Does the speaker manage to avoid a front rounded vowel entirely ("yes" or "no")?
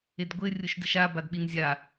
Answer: yes